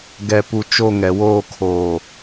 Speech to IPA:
ɡɛ˦˨pu˦ t͡ʃo˦˨ŋɛ˨woː˦˨kʰoː˨

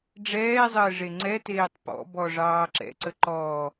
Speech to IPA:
ɖ͡ʐɛːzˤəː ʐeŋ͡ǀɛteːtˤ pɔ̰bɔ ʐɑːǁɛ̰ǀə ǃɔː

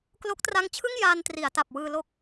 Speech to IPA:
klo˦˥k̚tra˦˥ŋt͡ɕʰɯ˥˩ŋ jaː˧ntri˩˦a̯ta˨˩p̚ wɯː˧lo˥˩k̚

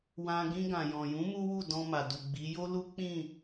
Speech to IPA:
wã˧ ɡĩ˧ɡã˨jɔ̃˨jũ˨˦ mu˦ wu˦˨dɔ̃˧ma˨ du˨ɡ͡bi˨˦ jo˦ lu˦k͡pĩ˦˨

